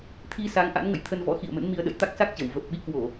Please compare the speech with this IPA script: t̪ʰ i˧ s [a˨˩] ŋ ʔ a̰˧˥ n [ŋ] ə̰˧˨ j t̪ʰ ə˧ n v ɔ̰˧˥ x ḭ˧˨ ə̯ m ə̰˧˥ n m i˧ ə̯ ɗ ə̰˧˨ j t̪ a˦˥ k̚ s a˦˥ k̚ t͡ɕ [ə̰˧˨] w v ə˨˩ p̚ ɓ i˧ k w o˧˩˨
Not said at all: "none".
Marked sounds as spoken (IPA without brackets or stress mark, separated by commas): a˨˦, ŋ, ə˧˩